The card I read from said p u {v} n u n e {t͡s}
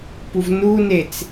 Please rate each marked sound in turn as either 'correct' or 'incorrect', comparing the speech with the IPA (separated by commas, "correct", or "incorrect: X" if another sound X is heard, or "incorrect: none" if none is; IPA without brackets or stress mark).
correct, correct